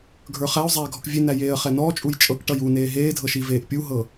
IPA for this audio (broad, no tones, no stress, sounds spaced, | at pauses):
ɡʱ ə˞ χ æ ʊ̯ zˤ æː ɡʱ ɔ k vʲ e n æ j eː ə̯ χ ɛ n ɔː t͡ʃʼ u j t͡ʃʼ ɤ k ʈ ʌ j u n eː ɦ eː dʱ ɤ ʃ i v eː ʔ pʲ u ɦ ɤ